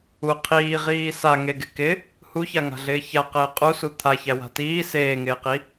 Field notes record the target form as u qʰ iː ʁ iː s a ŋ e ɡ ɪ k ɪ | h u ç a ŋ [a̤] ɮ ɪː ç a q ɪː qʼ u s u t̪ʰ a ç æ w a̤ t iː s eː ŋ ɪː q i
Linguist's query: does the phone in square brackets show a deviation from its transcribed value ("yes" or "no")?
no